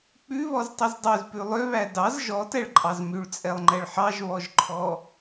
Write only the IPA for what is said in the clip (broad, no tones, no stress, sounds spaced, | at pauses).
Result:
k͡p ʉ β ɔ z tˤ i z dˤ ø z p ʉ lˠ ø β æ d ɑ z ʒ ɔ t ɛ ɭ ǃʼ ɑ z m y ɭ t͡sʼ ɛ lˠ ŋ͡ǃ ɛ ɭ ħ ɑ ʒ β ɔ ʒ ǃʰ ɔ